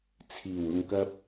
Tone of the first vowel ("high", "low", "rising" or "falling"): low